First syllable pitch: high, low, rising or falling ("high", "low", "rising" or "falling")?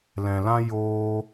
low